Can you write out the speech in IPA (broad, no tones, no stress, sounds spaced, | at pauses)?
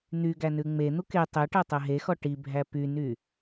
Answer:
n̪ y ɡ æ n ʉ ŋ͡m e n̪ u k e tˤ e ʈ ɛ tˤ ɛ ɦ e x ɔ ʈ i bʱ æ p y n y